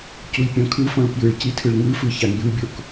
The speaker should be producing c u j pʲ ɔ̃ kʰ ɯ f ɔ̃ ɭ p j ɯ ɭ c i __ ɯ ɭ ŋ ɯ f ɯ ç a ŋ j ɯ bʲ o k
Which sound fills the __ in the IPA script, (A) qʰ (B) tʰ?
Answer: B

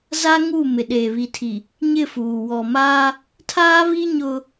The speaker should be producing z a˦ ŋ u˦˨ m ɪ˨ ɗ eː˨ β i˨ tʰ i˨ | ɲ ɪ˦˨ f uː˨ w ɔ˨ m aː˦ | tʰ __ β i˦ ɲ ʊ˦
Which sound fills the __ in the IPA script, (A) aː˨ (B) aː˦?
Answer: B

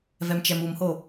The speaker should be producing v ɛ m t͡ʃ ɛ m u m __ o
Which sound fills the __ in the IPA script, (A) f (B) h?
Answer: B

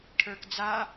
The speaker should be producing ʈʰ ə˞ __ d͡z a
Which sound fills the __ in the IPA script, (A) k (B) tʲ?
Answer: A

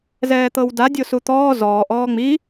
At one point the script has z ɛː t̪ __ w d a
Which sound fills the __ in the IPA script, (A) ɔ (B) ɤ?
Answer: B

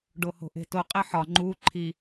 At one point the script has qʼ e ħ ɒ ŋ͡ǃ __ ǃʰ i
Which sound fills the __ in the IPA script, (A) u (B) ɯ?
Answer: A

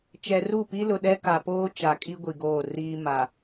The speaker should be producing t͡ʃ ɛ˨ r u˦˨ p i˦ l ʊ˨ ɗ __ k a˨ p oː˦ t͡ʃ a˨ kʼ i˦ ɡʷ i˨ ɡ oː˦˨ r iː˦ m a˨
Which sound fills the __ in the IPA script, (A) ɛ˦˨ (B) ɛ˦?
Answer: B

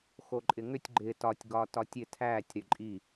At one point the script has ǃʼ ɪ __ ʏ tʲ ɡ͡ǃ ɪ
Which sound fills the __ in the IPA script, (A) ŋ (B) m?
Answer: A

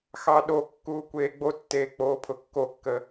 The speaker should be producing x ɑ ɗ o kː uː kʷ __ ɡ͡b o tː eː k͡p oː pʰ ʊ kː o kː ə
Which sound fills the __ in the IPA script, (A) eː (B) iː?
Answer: A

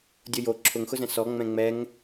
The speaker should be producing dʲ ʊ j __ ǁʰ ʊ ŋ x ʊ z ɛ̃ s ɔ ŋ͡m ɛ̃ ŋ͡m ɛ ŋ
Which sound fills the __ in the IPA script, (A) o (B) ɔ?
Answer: A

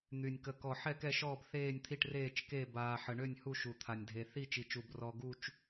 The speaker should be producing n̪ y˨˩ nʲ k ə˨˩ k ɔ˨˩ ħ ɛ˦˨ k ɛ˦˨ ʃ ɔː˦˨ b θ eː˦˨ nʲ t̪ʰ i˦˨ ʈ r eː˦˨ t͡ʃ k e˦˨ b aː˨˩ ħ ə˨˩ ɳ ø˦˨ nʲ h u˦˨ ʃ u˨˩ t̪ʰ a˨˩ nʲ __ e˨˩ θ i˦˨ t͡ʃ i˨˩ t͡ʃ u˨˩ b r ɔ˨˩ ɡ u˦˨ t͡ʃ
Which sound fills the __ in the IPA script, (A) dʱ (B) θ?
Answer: A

